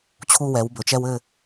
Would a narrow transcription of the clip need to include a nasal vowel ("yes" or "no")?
no